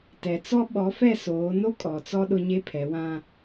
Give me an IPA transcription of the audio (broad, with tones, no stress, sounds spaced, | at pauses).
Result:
t ɛ˨ t͡s ɔ˦ ɓ ɔ˨˦ f ɛ˦˨ s oː˨˦ n o˦ kʼ ɔ˨ t͡s ɔ˦ ɗ ʊ˦ ɲ e˦ pʰ ɛ˨˦ w ã˦